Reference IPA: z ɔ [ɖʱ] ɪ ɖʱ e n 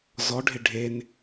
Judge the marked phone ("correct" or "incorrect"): correct